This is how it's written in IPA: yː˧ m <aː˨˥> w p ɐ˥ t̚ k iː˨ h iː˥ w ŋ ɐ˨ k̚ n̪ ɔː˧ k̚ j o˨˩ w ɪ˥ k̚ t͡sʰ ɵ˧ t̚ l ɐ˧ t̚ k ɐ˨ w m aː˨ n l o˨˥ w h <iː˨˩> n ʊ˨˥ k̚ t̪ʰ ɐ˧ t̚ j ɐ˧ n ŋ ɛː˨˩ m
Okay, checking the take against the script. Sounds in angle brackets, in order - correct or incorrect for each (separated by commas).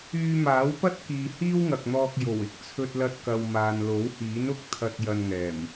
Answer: correct, incorrect